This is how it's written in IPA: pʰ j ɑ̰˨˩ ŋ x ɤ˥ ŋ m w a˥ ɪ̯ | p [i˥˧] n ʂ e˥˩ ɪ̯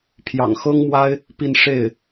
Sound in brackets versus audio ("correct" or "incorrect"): correct